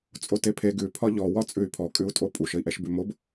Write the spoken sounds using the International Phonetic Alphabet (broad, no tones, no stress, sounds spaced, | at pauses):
t͡sʼ o t e pʰ e ɡ ʉ pʰ ɒ ʎ ɔ w ɒ t͡sʼ ʉ y̯ pʰ ɔ kʼ ʉ u̯ tʼ o pʼ u ʃ ə i̯ ʔ ɛ ʃ b ʉ m o b